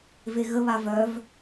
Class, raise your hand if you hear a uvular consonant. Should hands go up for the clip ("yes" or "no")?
no